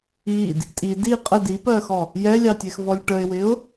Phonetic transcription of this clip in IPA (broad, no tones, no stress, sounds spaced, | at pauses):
i d | tʼ i d i qʼ ə d i p ɜ x ɔ | j ɛ lʲ ɑ tʲ ɛ x v ɔ lʲ ʈ ə ɪ̯ w ɪ ʊ̯